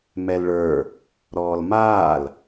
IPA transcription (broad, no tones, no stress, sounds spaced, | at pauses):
m ɛ l ɭ ə˞ | ɾ ɔː l m aː l